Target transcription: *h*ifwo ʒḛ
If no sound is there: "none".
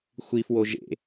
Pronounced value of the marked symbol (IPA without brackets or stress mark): xʷ